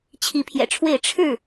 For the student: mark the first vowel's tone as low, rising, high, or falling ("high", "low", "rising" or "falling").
rising